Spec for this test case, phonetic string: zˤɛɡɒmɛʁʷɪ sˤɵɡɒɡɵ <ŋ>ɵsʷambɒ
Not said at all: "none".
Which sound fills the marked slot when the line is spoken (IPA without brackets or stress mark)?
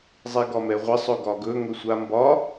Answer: ŋ